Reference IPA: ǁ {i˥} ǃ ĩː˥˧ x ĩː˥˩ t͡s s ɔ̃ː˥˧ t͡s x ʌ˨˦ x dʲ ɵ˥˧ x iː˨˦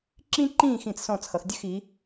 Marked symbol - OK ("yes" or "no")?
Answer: no